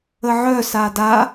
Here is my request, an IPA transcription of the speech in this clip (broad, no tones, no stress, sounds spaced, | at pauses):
ə ʕ œ s a d a